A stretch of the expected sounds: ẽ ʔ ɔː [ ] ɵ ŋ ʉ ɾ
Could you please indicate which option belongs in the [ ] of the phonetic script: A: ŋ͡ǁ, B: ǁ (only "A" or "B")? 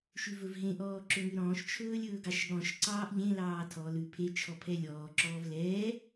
B